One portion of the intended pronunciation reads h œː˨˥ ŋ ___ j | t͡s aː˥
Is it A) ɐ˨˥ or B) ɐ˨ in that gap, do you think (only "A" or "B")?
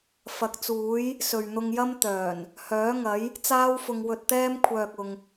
A